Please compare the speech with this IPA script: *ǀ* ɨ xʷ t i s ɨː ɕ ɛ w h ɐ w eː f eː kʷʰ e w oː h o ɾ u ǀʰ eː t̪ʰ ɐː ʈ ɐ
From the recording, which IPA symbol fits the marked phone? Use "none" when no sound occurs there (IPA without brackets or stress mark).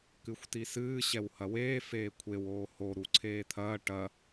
k